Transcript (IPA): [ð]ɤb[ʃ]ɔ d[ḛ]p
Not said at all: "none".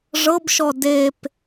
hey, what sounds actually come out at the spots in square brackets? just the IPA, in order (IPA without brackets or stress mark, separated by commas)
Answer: ʐ, ʃ, e